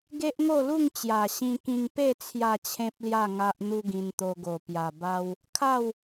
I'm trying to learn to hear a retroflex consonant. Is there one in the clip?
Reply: no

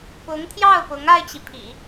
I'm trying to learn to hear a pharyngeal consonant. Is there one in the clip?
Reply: no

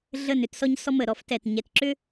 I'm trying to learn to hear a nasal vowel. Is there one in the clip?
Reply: no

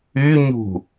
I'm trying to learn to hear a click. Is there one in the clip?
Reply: no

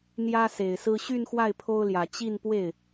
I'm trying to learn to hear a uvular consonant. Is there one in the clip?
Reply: no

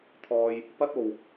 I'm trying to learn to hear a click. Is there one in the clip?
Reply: no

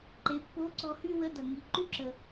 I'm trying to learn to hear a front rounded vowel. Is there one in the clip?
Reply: yes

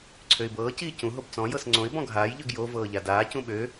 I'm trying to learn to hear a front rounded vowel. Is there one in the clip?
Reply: yes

